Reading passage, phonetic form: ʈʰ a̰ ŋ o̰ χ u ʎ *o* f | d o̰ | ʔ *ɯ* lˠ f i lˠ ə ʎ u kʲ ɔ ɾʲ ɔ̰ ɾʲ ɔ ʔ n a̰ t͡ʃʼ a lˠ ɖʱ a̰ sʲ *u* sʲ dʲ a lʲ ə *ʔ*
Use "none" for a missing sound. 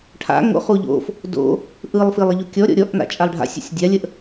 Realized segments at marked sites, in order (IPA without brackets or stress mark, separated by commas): o̰, ɯ, ṵ, ʔ